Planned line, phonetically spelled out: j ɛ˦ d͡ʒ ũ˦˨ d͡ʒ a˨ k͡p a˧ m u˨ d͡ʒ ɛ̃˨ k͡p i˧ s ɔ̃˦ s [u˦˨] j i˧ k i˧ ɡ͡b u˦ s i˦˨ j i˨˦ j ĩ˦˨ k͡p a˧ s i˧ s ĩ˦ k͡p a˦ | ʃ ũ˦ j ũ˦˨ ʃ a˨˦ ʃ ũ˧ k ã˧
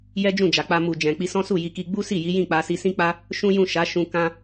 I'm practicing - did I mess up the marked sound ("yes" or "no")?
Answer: no